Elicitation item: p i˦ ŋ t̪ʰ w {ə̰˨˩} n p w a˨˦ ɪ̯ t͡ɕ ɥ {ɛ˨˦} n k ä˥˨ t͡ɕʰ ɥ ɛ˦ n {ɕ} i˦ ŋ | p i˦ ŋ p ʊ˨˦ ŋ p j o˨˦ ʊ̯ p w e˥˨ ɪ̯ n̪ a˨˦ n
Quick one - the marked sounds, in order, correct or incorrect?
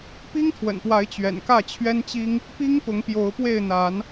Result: correct, incorrect, incorrect

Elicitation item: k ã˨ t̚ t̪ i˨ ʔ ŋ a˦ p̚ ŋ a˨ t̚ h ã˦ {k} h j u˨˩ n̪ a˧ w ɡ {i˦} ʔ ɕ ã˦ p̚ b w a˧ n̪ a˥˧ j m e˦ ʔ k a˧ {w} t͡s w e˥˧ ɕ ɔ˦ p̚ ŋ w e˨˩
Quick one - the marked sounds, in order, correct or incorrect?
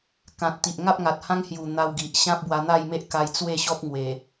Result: incorrect, incorrect, incorrect

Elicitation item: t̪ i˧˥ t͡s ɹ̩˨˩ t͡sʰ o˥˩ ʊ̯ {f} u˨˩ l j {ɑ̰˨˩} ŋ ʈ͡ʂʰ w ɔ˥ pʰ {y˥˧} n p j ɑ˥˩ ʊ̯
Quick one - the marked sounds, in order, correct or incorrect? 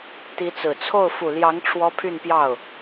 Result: correct, incorrect, correct

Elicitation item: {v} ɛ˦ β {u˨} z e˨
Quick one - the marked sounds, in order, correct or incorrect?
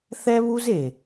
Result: incorrect, incorrect

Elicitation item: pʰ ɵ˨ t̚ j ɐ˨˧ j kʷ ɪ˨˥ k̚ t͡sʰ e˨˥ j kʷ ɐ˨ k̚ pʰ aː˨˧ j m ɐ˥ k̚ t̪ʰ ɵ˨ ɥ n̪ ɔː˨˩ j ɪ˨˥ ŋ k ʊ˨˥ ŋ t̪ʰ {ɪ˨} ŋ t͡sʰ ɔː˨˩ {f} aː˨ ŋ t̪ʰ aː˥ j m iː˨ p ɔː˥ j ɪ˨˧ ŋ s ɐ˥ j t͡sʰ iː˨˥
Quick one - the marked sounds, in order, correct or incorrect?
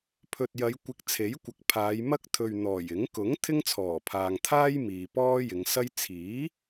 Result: incorrect, incorrect

